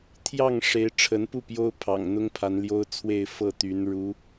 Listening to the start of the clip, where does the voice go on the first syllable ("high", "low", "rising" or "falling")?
falling